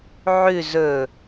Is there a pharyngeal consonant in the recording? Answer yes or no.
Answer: yes